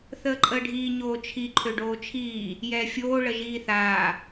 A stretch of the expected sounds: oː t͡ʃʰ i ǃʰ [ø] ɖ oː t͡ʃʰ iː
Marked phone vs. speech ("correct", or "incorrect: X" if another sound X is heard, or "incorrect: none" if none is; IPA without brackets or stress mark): correct